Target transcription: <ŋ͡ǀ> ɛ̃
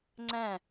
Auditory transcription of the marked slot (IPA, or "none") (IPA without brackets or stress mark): ŋ͡ǀ